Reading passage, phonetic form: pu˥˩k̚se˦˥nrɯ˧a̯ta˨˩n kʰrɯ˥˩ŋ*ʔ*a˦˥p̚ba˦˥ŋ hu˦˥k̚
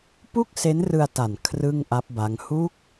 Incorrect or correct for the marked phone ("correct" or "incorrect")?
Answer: correct